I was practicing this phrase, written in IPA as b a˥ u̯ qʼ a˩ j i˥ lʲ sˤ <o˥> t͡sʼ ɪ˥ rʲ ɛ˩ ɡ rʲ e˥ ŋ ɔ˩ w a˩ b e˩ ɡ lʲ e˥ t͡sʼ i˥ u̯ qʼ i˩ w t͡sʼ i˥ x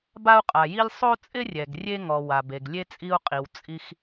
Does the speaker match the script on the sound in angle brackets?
yes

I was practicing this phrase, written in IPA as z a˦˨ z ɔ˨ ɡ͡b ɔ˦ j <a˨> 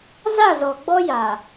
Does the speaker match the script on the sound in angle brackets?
yes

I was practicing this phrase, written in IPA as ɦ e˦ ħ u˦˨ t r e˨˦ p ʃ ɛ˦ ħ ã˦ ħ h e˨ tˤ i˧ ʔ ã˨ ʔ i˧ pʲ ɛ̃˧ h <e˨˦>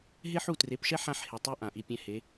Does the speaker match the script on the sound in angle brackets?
yes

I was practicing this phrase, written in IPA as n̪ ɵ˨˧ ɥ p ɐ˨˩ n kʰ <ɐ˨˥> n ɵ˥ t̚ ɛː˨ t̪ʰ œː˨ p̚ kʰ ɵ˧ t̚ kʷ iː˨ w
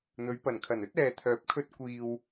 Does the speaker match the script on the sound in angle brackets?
no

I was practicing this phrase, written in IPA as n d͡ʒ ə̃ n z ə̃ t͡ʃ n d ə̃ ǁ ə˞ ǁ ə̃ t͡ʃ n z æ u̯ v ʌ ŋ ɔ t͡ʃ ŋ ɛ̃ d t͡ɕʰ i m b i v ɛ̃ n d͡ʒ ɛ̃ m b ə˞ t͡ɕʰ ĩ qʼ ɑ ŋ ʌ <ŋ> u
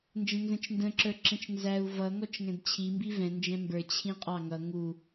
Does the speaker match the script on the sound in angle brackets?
yes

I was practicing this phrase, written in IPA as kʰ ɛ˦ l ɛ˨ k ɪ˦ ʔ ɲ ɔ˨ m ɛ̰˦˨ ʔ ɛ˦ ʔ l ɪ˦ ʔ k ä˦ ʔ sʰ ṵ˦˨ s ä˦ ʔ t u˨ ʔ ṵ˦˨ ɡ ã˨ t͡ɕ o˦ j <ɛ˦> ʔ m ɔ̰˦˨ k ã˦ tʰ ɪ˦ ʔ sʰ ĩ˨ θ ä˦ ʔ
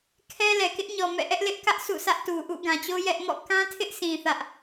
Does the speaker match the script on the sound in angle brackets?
yes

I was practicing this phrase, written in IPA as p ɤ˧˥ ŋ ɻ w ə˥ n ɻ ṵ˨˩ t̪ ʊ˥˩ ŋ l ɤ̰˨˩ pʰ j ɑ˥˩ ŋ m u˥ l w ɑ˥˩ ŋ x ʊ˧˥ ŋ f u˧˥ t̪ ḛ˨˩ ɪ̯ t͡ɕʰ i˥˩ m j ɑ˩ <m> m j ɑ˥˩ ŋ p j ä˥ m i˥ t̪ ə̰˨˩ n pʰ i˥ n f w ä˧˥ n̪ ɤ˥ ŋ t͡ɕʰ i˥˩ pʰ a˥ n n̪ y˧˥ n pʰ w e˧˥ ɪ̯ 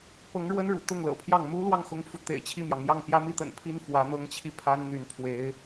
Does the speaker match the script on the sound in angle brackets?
no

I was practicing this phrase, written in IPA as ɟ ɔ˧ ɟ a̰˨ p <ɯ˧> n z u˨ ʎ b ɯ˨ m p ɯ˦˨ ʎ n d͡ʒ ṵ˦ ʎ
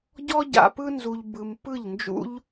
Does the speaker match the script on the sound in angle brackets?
yes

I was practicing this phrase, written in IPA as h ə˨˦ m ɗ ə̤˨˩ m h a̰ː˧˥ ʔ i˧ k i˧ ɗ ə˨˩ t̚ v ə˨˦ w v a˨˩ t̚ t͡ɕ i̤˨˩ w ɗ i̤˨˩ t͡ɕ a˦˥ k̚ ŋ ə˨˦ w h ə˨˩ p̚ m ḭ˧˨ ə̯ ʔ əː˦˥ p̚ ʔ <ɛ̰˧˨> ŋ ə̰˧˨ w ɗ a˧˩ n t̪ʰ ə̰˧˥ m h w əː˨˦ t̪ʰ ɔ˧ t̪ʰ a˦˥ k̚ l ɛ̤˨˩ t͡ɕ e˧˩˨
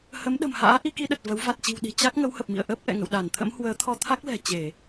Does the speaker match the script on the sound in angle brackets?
yes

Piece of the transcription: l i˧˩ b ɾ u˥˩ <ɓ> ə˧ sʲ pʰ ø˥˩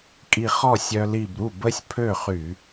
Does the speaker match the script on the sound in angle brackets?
no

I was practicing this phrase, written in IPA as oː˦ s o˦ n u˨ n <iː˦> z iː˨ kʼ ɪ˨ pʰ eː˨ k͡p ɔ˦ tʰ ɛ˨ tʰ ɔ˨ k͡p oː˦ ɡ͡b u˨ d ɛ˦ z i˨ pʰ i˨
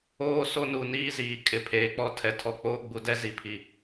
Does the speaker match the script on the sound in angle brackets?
yes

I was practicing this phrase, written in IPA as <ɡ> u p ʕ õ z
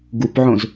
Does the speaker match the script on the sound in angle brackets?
yes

